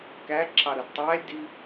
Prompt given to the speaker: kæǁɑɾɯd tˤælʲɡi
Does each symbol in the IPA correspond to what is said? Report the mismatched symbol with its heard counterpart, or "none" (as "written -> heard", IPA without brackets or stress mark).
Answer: ɡ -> d